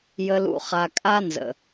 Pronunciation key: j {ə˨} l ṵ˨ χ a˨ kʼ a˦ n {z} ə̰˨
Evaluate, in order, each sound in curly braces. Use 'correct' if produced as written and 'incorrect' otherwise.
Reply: correct, correct

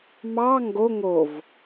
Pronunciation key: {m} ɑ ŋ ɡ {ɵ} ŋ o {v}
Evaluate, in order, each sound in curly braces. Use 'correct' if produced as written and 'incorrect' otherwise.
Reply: correct, incorrect, correct

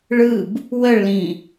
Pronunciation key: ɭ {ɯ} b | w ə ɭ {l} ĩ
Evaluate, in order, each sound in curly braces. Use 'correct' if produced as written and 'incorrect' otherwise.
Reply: correct, correct

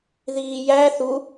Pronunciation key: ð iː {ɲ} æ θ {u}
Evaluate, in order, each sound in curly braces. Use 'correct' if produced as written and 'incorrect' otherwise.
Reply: incorrect, correct

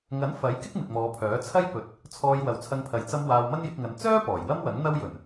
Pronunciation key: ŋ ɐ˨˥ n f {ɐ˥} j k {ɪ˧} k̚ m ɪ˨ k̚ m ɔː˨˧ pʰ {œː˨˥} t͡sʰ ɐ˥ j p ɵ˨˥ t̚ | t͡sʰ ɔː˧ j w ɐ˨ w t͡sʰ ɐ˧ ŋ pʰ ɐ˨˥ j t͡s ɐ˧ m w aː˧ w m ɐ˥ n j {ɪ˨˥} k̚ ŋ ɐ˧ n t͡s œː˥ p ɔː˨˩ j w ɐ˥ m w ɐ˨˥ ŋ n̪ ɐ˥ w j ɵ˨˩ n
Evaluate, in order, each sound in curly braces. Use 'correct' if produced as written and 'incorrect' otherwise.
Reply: incorrect, incorrect, correct, correct

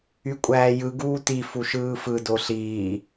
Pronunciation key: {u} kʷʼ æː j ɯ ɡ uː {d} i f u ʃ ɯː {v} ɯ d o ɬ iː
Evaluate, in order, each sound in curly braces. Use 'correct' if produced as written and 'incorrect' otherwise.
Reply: incorrect, incorrect, incorrect

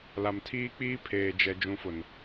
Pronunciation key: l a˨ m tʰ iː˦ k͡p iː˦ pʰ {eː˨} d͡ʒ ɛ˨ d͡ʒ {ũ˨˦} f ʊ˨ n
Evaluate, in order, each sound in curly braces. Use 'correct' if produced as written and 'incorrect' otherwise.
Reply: correct, correct

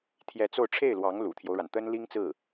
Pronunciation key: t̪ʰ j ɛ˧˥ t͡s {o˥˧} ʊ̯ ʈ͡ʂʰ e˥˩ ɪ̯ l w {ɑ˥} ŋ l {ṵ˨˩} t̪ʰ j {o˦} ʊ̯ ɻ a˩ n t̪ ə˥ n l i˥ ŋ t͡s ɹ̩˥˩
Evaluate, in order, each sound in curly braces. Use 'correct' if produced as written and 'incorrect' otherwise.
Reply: correct, incorrect, correct, correct

